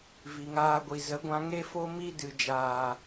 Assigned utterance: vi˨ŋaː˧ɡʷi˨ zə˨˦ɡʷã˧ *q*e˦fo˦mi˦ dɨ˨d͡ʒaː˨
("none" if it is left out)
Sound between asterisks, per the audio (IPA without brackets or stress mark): ŋ